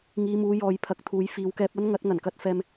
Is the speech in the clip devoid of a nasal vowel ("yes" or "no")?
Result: yes